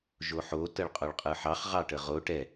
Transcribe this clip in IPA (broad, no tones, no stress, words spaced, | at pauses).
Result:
ʒoħo təɭqʼoɭqʼɯħɑχ ʁɑʈəʁo ʈɛ